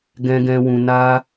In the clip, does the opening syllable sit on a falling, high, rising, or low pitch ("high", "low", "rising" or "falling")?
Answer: low